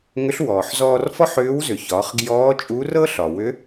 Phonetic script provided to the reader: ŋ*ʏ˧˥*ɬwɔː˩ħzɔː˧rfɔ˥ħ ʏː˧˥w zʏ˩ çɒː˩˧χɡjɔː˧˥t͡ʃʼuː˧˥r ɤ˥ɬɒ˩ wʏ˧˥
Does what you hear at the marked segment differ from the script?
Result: no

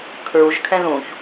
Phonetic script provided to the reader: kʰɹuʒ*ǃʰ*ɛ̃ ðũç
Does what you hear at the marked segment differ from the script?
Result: yes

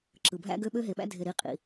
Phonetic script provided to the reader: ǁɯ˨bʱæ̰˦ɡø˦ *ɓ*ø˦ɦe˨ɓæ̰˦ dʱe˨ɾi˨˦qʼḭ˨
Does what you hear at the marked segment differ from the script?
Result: no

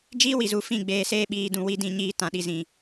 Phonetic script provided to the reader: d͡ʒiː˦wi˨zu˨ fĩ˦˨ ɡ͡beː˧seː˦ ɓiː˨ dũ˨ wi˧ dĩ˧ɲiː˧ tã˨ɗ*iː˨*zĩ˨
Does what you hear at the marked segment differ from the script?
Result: yes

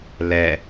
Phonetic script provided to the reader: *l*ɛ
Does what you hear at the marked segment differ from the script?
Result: no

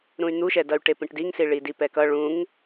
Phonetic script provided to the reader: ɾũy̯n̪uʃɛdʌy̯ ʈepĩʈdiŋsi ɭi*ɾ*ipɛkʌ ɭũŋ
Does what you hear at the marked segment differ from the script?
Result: yes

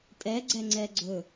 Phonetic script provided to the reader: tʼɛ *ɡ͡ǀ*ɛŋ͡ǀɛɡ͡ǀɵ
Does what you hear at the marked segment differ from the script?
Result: no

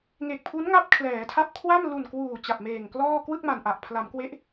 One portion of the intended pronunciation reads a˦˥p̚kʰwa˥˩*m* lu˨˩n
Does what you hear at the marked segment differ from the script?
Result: no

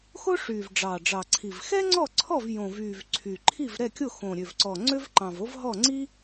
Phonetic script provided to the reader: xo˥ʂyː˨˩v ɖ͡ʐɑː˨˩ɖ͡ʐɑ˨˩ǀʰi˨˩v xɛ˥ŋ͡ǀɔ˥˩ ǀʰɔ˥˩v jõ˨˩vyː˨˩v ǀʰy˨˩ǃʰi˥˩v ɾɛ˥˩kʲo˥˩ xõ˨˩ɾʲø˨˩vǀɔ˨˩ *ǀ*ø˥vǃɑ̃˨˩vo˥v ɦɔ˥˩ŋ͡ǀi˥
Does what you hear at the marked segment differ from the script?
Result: yes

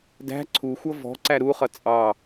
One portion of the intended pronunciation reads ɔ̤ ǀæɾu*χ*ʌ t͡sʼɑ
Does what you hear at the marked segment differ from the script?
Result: no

